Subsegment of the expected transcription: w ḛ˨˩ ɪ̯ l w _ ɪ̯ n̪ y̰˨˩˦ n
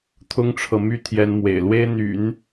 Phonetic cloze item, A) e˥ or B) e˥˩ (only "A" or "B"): A